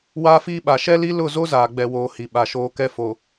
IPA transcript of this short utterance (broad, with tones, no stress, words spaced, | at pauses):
waː˦fiː˦ɓa˨ ʃɛ˦li˦lʊ˦˨zo˦ zaː˨ɡ͡bɛ˨woː˨ hi˨ɓa˨ʃoː˦ kɛ˦fo˨